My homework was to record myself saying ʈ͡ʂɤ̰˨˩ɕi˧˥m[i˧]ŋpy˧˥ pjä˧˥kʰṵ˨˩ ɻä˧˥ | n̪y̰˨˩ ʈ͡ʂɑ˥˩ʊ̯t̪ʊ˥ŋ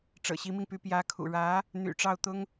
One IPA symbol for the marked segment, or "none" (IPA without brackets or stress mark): i˧